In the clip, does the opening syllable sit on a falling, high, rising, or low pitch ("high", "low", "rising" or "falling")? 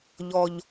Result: low